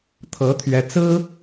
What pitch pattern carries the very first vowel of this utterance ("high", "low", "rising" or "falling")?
rising